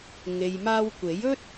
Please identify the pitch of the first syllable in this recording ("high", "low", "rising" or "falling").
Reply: low